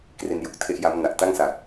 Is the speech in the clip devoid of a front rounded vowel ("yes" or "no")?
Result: yes